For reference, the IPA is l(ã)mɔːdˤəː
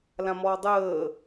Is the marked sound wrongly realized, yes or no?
no